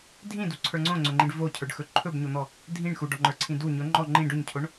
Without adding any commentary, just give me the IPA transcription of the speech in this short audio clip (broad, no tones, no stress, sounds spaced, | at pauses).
dʱ ĩ d u ǀʰ ə˞ ŋ͡ǀ õ ŋ͡ǀ ɵ ŋ͡ǃ ĩ ɖ v o cʰ ə˞ ɖ x ɵ ǃʰ ɵ b ɲ o n̪ ɔ | dʱ ĩ ɳ x u ɖ ɔ ŋ͡ǃ ə˞ ǀʰ ĩ d u ɲ ɵ ŋ͡ǃ ɔ ŋ͡ǃ ĩ ɖ ɵ ɲ cʰ o ɳ